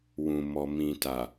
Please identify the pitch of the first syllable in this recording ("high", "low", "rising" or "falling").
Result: low